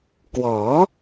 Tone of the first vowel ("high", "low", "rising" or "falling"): rising